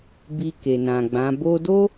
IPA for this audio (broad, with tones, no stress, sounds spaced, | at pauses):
b i˧ k e˨ n ã˨ ɡ͡b ã˨˦ b o˦ d o˦